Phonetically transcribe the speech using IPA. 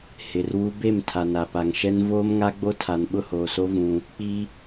h ɪ˨ r w u˦ b e˦˨ m tʰ a˨ n a˨ p a˨ ŋ ʃ ɛ˦ n v oː˦ m ŋ a˦ ɡ͡b o˦ tʰ a˨ n ɓ ʊ˦˨ h oː˨ s o˦ v ũ˦ | k͡p i˦

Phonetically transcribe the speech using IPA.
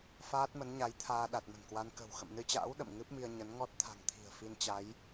f aː˦˥ t̚ m ə˨˦ n ɲ a˨˦ j t̪ʰ aː˧ ɗ a˨˩ t̚ m ə̤˨˩ n k w a˧ n k ə̤˨˩ w x ə̰˧˨ m n ɨ˧ t͡ɕ a̰ː˧˥ w ɗ ə̰˧˨ m ŋ ɨ˦˥ p̚ m i˧ ə̯ ɲ ə˨˦ n ŋ ɔ˦˥ t̚ t̪ʰ a̤˨˩ ŋ t̪ʰ i̤˨˩ ə̯ f i˧ n t͡ɕ a˨˦ j

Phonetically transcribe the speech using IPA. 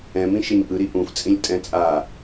ɛ̃ m ĩ ʃ e ɲ ʔ ɯ ɾ i ʔ ũ f t͡sʼ ĩ lʲ tʼ ɛ̃ t͡sʼ a

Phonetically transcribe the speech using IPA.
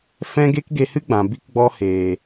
f ɛ̃˦ ɡ e˦ k ɡ e˧ h ɨ˦ ɡ͡b ã˨ b i˧ k ɡ͡b ɔ˧ h eː˨

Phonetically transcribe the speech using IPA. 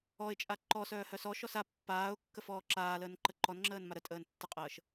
ɔ ɪ̯ t͡ʃʼ a ǃ ɔ s œː h œ s ɔ ʃ ɔ s a pː aː ʊ̯ kː ə f ɔː ǁ aː l əː n ǃ ə ǃ ɔ n ŋ͡ǁ əː n m a ɾ ə tʼ əː n tː ə qʼ əː ʃ

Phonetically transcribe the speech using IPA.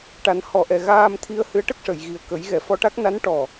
ʈ a˨˩˦ n h ɔ˨˩˦ ʔ ɛ˨˩˨ ɣ aː˧ m t̪ʰ i˧ ə̯ h ɨ˧˥ ə̯ ʈ ə˦˥ k̚ ʂ ə˨˩˨ j ɣ i˨˩ ə̯ k ə˨˩˦ j ɣ ɛ˨˩˨ f ɔ˧ ʈ a˦˥ k̚ n a˧˥ n ʈ ɔ˨˩

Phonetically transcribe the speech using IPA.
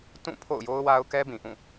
t ũ˦˨ pʰ o̰˦˨ ʊ̯ j o˦ ʊ̯ w a˦ ʊ̯ k ɛ˦ b ĩ˨ ʔ ũ˦˨

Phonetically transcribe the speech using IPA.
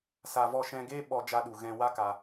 s a˧ v ɔ˦˨ ʃ ɛ̃˧ ɡ eː˦ ɓ ɔ˧ d͡ʒ a˧ ɗ u˨ ɣ ɛ̃˧ w a˦ k a˧

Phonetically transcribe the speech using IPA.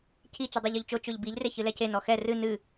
cʰ i t͡ʃ u dˤ o ʎ o ʎ t͡ʃ o t͡ʃ o ʎ b i ʎ r e ç ɨ l ɛ c e n ɔ x ɛ r ɨ n ɨ

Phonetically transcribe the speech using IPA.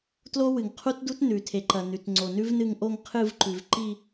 t l o˦˥ w ɨ˩ ŋ qʰ u˦˥ t d u˦˥ t n ʉ˩ tʰ e˩ ǃ ɐ˩ n ʉ˩ t ŋ͡ǀ o˩ n ʉ˦˥ v n ɨ˦˨ ŋ ʔ o˦˨ ŋ qʰ ɨ˦˨ v ǃ ʉ˩ v ǃ i˦˨

